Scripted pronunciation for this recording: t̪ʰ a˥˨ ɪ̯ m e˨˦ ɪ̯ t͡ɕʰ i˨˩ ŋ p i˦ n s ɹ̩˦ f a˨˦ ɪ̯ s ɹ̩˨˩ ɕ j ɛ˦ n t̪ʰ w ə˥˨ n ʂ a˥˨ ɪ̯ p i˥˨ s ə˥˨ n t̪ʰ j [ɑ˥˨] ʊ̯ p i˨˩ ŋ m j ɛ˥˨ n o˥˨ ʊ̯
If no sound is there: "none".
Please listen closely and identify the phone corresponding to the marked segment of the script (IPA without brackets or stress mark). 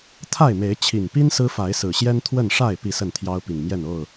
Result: ɑ˦